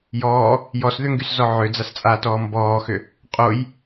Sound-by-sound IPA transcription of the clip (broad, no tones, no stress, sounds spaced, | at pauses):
j ɔː | j ɔ s ð ʏ ŋ ɡ y s z ɔ ʕ ʏ d͡z a s t͡sʼ aː t ɔː m b ɔː x ʏ | qʼ o j